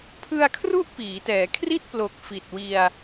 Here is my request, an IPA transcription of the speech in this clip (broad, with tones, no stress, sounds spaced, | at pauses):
pʰ ɯ˧ a̯ kʰ r u˦˥ ʔ p iː˩˦ t ɛː˩˦ kʰ r i˥˩ t̚ p l o˨˩ k̚ f i˨˩ t̚ w i˧ a̯